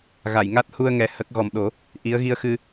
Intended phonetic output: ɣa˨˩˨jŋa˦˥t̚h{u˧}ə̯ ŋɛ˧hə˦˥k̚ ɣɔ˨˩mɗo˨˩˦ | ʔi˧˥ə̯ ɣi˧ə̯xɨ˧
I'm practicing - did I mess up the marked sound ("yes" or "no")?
no